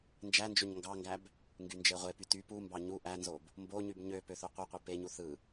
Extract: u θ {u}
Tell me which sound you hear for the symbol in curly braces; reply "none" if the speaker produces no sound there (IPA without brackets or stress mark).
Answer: ɯ